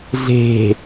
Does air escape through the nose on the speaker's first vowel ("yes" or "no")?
no